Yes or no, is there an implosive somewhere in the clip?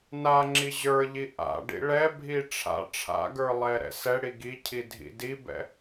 no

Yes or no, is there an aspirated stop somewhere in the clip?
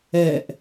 no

